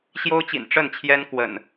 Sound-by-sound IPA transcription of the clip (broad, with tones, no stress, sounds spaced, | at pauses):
ɕ j o˦ ʊ̯ t͡ɕ ḭ˨˩ n ʈ͡ʂ ə˥˨ n t͡ɕʰ j ɛ˦ n k w ə̰˨˩ n